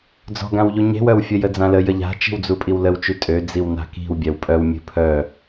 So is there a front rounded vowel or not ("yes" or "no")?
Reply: yes